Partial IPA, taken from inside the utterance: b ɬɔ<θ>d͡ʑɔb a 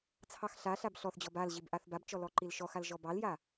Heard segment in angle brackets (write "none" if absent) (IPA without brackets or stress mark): θ